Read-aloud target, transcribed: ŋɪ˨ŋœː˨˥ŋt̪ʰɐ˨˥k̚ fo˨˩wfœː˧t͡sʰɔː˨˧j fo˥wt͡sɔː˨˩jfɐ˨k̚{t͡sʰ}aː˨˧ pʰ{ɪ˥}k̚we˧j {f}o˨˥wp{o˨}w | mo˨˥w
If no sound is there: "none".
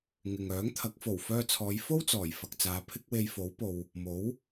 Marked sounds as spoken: t͡s, ɪ˥, f, o˨

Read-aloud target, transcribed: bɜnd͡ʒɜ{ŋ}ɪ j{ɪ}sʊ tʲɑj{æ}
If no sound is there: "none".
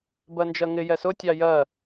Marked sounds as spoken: ŋ, ɛ, ɜ

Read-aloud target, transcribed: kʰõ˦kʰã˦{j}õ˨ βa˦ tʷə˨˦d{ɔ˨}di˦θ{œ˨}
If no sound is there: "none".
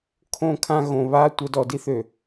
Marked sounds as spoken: ɣ, ɔ˨, ø˨

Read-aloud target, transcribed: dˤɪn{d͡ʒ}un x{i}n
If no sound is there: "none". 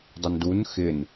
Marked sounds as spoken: d, ɪ

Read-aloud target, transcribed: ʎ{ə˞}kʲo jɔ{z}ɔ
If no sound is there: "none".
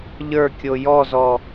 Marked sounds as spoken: ə˞, z

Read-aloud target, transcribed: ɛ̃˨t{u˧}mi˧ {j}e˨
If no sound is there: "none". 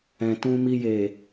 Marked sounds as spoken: ũ˧, j

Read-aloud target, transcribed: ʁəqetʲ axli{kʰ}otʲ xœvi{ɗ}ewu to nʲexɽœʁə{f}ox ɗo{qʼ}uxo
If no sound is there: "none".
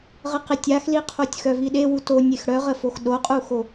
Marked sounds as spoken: qʰ, ɗ, f, qʼ

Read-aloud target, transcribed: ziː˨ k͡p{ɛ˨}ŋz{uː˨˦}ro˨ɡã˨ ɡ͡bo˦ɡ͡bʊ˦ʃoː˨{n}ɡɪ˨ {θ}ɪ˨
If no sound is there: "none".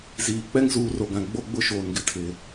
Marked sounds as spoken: ɛ˦, uː˨˦, n, tʰ

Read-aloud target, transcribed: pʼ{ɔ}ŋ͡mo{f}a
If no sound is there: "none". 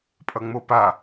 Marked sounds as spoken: ʌ, p

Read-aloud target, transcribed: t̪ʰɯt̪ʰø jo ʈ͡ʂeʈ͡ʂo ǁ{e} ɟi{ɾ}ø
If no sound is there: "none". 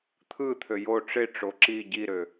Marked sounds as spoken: i, ɾ

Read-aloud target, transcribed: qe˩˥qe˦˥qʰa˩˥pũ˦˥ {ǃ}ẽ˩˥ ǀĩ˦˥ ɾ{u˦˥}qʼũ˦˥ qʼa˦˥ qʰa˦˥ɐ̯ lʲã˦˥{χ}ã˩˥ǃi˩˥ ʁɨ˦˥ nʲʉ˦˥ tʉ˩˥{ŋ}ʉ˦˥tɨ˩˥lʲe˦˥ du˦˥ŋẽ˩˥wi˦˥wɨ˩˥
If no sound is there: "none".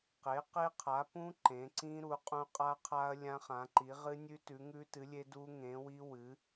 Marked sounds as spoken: ǃ, u˩˥, χ, ŋ

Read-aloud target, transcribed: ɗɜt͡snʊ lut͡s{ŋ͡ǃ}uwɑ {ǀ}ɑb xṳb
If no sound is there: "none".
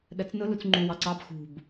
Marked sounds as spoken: ŋ͡ǃ, ǀ

